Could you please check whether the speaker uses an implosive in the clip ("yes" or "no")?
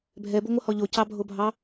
no